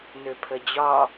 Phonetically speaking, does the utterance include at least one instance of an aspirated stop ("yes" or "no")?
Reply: yes